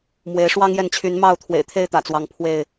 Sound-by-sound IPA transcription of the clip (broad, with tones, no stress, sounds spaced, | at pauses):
m w e˨˦ ɪ̯ ʂ w ɑ˦ ŋ j ɛ˥˨ n t͡ɕʰ y˨˦ n m ɑ˥˨ ʊ̯ t̪ʰ w ḛ˨˩ ɪ̯ t̪ʰ e˥˨ ɪ̯ t̪ ä̰˨˩ t͡s w ɑ˨˦ ŋ pʰ w e˥˨ ɪ̯